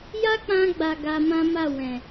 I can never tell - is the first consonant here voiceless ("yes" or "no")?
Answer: no